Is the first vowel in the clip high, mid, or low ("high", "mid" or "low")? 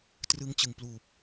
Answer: high